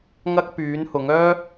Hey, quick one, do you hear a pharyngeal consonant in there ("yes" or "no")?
no